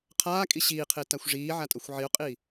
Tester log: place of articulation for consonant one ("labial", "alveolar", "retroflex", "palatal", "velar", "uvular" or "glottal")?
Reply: uvular